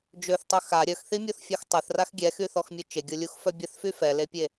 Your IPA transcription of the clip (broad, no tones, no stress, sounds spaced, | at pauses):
d͡ʒ ø θ tˤ œ x a ɾʲ œ x θ i mʲ o θ fʲ ɔ x tˤ ɛ θ r a x ɡʲ ɛ x y θ ɔ x mʲ ø t͡ʃ e ɡʲ o lʲ u x f œ bʲ ə θ f y f ɛ l e pʲ e